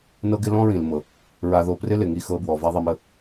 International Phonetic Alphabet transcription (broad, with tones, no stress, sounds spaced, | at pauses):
n ɤ˦ ɡ ɪ˦ l ɔ̃˦ ɹ ĩ˨ l m ɤ˨ | ɹ a˧ ð o˧ p r ɪ˦ l ɪ˨ ŋ i˧ x ɤ˧ b w ɔ˨ v a˦ ðˤ i˧ m ə˧